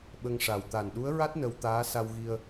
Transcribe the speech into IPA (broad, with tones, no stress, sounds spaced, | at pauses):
ɓ ə˧ ŋ ʂ a˨˩ w t̪ a˨˩ n ɗ u˧˥ ə̯ ɹ a˦˥ t̚ n ə˧ w t̪ aː˧˥ s a˧ w ɣ i˧ ə̯